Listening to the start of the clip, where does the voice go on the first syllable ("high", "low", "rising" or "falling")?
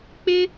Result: high